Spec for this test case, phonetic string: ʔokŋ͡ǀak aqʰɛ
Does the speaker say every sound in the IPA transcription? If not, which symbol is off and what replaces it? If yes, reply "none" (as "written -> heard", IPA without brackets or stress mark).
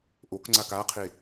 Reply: ɛ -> e